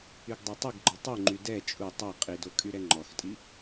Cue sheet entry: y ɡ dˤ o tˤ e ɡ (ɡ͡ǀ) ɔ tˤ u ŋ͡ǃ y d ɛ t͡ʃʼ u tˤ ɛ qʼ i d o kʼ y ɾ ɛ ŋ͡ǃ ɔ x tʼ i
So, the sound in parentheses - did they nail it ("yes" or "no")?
no